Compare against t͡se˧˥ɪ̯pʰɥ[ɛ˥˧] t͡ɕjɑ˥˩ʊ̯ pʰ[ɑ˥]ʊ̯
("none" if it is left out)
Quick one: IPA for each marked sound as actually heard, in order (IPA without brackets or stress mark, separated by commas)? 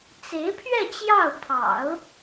ɛ˥˧, ɑ̰˨˩˦